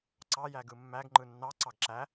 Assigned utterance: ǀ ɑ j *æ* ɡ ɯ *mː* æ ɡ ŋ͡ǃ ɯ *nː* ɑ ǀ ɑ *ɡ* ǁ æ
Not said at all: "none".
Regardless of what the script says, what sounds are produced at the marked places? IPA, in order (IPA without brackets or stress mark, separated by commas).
æ, mː, nː, ɡ